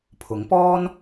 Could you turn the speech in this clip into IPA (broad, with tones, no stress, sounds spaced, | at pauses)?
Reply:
pʰ ʊ˨˥ ŋ p ɔː˥ n